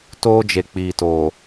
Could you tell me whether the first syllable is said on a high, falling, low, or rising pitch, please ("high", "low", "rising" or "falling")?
high